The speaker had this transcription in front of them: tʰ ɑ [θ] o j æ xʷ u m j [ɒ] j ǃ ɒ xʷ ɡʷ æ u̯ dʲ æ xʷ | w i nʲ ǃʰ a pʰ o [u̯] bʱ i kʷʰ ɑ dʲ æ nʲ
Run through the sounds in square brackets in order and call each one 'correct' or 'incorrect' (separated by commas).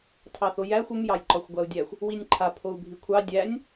correct, incorrect, correct